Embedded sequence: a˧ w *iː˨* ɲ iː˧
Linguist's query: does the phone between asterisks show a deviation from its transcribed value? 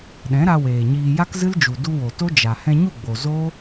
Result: yes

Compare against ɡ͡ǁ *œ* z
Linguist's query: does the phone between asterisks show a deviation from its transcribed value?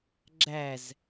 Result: yes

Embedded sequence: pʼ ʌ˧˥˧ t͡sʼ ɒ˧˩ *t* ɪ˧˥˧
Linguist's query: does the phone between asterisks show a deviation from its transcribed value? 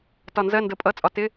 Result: no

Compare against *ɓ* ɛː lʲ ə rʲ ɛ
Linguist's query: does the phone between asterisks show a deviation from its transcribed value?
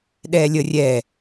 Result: yes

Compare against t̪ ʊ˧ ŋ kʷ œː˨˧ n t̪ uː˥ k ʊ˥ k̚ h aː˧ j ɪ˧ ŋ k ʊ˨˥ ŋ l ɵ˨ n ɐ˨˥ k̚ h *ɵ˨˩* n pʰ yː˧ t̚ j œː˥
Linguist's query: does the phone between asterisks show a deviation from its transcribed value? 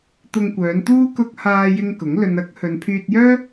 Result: yes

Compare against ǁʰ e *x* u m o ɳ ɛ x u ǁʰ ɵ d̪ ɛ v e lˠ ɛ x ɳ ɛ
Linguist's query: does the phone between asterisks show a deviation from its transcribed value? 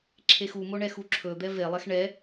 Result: no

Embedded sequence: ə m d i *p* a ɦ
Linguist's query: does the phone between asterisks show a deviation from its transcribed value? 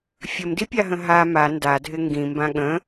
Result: yes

